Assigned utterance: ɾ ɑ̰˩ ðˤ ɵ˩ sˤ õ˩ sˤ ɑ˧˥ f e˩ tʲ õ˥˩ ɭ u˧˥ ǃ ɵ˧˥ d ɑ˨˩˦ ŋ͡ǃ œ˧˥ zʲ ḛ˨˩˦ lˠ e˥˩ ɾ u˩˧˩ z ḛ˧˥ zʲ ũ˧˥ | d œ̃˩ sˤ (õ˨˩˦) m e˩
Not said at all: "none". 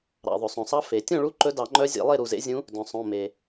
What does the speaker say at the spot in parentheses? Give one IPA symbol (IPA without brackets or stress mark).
õ˩˧˩